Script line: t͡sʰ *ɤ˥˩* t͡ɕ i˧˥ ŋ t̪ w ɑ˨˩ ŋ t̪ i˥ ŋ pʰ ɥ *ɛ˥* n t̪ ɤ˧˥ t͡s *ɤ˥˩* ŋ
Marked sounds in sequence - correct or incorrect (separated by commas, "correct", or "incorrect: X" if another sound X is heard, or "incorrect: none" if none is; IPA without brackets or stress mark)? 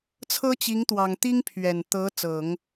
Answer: incorrect: ɤ˥, incorrect: ɛ˨˩, incorrect: ɤ˨˩˦